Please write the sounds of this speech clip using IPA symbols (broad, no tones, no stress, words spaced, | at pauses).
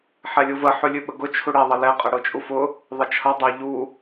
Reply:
ħɛlʲuvə ħʉlʲʉɓəɡʊ t͡ʃʰuɽɛ ðˤəlɛ qʼəɽʊt͡ʃʼufʊ | ðˤət͡ʃʰʌ dˤɛʎu